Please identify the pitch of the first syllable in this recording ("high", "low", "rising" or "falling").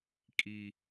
high